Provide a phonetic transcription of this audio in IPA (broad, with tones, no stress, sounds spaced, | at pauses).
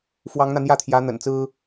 f w ɑ˧˥ ŋ n̪ ä˧ n̪ j ä˥˩ t̪ʰ j ä˧˥ n̪ ə̰˨˩ n t͡s ɹ̩˥